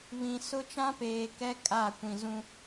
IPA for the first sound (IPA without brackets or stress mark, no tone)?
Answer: β